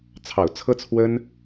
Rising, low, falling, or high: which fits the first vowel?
low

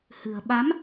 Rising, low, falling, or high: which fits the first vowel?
low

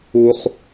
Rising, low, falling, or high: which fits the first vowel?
low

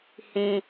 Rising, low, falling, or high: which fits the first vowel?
low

